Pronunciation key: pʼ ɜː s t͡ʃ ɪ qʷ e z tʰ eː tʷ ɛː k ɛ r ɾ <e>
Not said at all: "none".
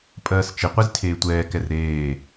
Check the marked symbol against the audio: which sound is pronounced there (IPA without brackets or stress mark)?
eː